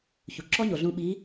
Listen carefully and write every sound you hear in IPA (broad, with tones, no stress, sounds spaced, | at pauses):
ç u˩ ǁ ɔ˥ ɲ o˩ ɮ ũ˧ ɓ i˧˥